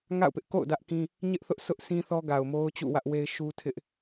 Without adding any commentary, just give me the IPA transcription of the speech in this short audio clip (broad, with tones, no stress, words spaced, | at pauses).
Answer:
ŋa̰˦˨ʊ̯pɪ˦ʔko̰˦˨ʊ̯ dä˦ʔkĩ˦ | ɲɪ˦ʔθʊ˦ʔsʊ˦ʔ sĩ˦θɔ˦ɡa˨ʊ̯ mo˦ʊ̯t͡ɕṵ˦˨wä˦ʔwe˦ɪ̯ ʃu˦tʰɪ˦ʔ